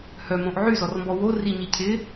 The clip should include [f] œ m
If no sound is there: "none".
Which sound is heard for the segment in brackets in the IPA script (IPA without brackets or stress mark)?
h